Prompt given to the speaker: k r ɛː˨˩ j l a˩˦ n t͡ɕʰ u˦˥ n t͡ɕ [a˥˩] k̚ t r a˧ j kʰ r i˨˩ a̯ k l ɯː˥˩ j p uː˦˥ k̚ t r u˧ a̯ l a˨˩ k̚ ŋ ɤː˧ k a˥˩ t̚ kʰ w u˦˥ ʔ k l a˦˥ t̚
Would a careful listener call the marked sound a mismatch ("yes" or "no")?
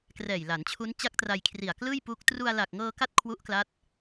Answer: yes